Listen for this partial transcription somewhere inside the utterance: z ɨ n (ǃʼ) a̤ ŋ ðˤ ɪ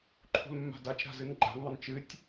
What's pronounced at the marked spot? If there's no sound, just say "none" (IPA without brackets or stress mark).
ɡ͡ǃ